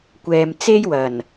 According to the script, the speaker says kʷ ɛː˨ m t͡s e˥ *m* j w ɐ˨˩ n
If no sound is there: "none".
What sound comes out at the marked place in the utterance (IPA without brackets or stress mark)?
none